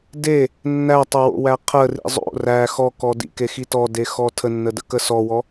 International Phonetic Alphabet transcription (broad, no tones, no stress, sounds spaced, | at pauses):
d e | nː æ tˤ o w o̰ w æ qʰ ə r ḭ zˤ o̰ r æ x ɔ k ɔ d ḭ k e x i t ɔ d e x ɔ tʰ ə nː ə d ə̰ k ə s ɔ w ɔ